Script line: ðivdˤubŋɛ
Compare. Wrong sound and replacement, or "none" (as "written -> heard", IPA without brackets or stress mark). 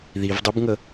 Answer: ɛ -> ə